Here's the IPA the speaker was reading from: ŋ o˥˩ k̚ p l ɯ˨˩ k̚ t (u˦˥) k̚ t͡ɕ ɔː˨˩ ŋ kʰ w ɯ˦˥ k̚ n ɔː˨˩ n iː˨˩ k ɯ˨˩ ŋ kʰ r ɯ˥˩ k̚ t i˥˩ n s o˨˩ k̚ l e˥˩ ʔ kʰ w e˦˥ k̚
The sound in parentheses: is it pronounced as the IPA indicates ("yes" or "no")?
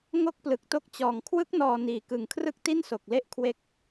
no